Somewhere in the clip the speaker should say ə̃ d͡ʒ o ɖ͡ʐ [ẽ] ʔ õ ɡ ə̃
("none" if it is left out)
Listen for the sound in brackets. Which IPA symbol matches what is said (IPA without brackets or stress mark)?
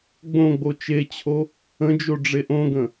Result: e